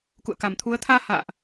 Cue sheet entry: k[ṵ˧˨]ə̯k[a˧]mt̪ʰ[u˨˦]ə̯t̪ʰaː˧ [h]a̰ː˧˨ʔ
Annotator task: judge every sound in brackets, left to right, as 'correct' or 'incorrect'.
correct, incorrect, correct, correct

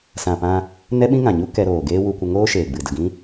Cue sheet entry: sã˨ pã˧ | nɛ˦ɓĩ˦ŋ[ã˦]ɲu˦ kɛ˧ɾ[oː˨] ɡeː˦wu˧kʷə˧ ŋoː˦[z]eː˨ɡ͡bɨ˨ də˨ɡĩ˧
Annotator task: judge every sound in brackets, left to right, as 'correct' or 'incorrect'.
incorrect, correct, incorrect

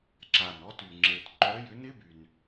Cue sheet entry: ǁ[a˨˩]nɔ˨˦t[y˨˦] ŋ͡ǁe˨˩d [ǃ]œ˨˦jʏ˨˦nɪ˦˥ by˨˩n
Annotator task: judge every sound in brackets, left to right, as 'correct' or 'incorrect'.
correct, incorrect, correct

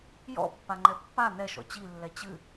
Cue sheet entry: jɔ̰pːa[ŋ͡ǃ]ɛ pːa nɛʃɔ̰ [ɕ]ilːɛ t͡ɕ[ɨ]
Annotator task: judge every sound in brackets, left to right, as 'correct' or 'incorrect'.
correct, incorrect, correct

